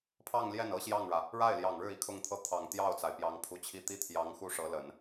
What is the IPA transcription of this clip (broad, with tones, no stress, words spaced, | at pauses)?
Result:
pʰɑ˥˧ŋljɛ˥˩nɤ˥ ɕjɑ˥˩ŋɻä˩ | ɻa˥˩ɪ̯ljɑ˨˩ŋɻɻ̩˥˩ i˧˥kʰʊ˥˧ŋt̪ʰɤ˥˩ t̪ʰɑ˨˩ŋt̪jɑ˥˩ʊ̯t͡sa˩ɪ̯ pjɑ˧˥ŋpʰu˧˥t͡ɕʰi˥˧ t̪i˥˩t̪ʰjɑ˧˥ŋ xu˥˩ʂɤ˧˥ lə˨˩˦n